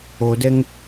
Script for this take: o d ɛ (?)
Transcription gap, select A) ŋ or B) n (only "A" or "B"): A